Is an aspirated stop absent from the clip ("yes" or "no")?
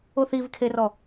no